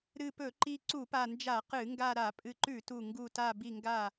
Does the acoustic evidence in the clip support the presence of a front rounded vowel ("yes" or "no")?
no